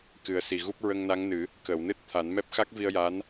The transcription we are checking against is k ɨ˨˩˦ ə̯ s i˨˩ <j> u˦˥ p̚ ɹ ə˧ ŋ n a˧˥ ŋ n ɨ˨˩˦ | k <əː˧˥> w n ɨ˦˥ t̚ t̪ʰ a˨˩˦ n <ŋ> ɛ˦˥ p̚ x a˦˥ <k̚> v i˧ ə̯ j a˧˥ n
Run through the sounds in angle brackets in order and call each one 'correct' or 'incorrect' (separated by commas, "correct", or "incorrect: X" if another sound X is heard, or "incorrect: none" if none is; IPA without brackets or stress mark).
incorrect: ɣ, incorrect: əː˨˩˨, incorrect: m, correct